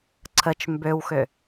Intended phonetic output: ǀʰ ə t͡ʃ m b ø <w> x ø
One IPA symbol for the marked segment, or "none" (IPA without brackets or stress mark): w